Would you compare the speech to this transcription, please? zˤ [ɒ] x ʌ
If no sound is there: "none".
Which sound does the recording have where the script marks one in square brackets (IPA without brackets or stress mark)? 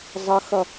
ʌ